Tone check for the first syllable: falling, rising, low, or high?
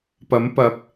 rising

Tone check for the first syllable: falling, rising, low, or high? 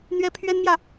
high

